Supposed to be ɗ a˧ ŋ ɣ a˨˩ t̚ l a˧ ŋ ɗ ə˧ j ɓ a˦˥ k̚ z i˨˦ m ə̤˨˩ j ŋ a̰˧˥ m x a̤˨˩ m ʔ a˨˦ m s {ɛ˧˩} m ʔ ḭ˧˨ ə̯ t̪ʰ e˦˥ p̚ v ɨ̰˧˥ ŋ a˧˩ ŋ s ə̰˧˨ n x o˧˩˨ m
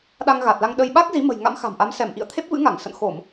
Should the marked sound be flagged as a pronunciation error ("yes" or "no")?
no